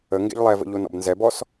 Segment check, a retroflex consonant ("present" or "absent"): absent